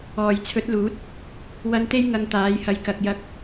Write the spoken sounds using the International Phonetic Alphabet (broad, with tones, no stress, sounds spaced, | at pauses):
ɔː˨˩ j t͡sʰ ɵ˨˥ t̚ l uː˨˥ t̚ | w ɐ˧ n t̪ e˥ j ŋ ɐ˧ ŋ t̪ aː˨˥ j h ɐ˧ j k ɐ˨ k̚ j ɐ˧ k̚